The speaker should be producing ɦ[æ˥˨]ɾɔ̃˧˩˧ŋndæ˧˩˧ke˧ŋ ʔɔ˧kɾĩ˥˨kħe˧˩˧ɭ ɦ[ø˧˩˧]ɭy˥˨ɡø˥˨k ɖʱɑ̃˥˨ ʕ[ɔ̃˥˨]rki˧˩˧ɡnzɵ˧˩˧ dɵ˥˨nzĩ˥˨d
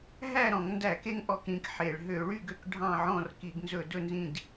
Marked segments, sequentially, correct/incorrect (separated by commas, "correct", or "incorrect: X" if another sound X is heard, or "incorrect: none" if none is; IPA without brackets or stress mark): correct, correct, correct